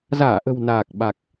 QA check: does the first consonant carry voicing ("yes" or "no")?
yes